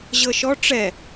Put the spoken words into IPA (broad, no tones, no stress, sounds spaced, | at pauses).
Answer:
ʑ ɤ ʃ ɔ ʈ͡ʂ ɛ